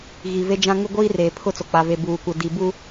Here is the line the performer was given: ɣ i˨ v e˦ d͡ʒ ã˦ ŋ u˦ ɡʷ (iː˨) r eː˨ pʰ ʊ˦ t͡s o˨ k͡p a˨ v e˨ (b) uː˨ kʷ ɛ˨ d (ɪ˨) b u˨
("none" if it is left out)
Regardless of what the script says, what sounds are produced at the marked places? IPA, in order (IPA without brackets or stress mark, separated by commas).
iː˦, b, i˨